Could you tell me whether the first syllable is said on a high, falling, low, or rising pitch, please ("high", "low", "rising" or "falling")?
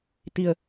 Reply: low